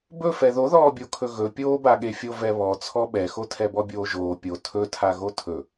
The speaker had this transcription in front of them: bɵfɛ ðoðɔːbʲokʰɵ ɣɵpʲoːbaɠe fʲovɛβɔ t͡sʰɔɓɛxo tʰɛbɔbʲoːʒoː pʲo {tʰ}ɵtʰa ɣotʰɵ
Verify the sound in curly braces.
correct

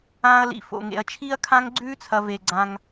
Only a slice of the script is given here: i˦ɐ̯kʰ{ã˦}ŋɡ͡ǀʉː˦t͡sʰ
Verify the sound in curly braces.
correct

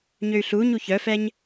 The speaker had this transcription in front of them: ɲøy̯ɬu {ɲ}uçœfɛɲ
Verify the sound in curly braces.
correct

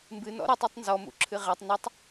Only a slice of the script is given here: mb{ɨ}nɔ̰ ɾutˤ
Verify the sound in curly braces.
correct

